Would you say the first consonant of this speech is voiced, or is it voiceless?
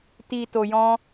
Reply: voiceless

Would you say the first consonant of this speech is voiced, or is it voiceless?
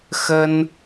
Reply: voiceless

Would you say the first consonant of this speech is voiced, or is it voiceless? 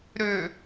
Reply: voiced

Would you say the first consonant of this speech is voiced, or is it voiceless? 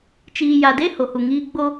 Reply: voiceless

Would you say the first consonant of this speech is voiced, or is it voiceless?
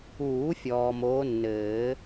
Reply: voiceless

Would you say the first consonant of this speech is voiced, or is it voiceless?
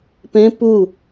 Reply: voiceless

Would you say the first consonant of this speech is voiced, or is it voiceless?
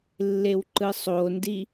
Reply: voiced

